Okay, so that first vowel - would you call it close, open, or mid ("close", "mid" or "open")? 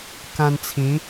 open